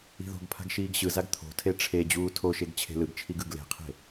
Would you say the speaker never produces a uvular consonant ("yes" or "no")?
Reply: no